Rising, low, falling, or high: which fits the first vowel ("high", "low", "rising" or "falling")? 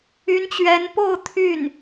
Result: rising